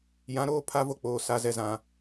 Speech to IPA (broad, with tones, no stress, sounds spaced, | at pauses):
j ã˨˦ ɾ oː˦ pʰ a˦ v o˦ k͡p oː˨ s a˨ z ɛ˨ z ã˨